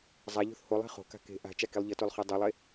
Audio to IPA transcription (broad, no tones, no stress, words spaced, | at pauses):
zˤaʎ o̤θholˠe̤ χo̤ka̤ ke̤ ʔa̤ t͡ʃakilˠʎʌtolˠ χɯdˤolˠe